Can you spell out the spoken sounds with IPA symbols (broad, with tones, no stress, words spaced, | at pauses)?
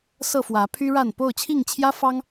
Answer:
sɤ˥˨fwä˨˦pʰy˦ɻa˥˨n po˥˨ʊ̯t͡ɕʰi˥˨ŋt͡ɕʰjä˦fɑ˦ŋ